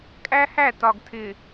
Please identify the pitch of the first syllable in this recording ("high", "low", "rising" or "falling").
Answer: high